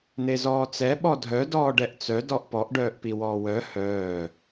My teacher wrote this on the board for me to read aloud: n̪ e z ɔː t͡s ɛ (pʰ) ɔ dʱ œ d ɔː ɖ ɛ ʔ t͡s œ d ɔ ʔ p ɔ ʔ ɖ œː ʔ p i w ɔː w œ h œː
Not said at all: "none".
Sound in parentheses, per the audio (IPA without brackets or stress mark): ɓ